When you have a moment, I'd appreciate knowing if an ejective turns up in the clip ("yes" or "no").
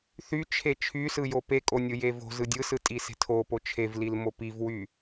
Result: yes